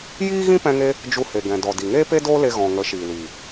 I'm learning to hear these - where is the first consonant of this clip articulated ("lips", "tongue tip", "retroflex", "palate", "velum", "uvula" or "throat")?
palate